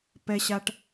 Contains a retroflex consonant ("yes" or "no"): yes